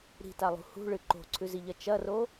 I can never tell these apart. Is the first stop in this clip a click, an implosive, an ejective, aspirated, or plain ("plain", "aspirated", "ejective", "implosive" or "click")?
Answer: plain